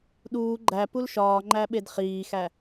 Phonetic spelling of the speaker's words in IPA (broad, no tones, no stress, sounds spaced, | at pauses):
ɗ uː ɡ͡ǃ æ p u l ʃ ɒː ŋ͡ǃ æ ɓ e d χ iː x æ